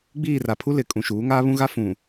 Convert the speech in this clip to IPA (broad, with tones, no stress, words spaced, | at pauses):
ɡ͡biː˦˨ra˨pʰu˦ lɪ˨˦kʼũ˨ʃuː˨˦ ŋaː˦βũ˦ɣa˦ fũ˨